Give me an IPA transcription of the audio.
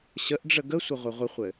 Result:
ɕ ə ʔ ɖ͡ʐ ə ɡ ə sʷ ə ʁʷ ɘ ʁʷ ə χʷ ɘ

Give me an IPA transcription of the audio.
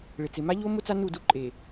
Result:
ɭ ɪ˨ t͡s ɪ˨ m a˦ ʎ o˦ m ʊ˦ t͡s a˦ n u˦˨ d u˦ ǃʼ e˨

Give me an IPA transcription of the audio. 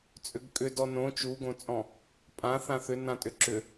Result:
t͡sʼ ʏ ɡ kʼ ʏ d ɔ n õ t͡ʃ u ɡ õ t͡sʼ ɔ̃ | pʼ ã θ ã θ ʏ n ã tʼ ʏ ǁ ʏ

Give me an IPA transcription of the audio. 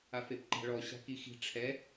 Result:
a f e p ǃ a̤ ɭ ɔ ɕ a̤ k i x i̤ ʈ͡ʂʰ ɛ

